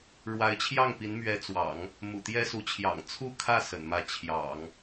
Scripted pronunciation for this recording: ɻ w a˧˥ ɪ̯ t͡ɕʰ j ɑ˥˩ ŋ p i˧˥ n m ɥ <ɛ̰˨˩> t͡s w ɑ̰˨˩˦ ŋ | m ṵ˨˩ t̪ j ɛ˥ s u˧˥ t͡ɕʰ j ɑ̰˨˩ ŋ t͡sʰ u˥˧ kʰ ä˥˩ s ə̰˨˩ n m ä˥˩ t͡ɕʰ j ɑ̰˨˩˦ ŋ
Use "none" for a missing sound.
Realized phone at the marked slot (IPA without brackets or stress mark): ɛ˧˥